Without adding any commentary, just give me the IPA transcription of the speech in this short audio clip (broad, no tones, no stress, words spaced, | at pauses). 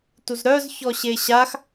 tuzɾœz çɔɕeɕax